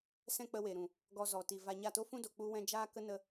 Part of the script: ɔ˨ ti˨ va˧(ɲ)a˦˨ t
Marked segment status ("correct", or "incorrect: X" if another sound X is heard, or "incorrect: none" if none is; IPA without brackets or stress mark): correct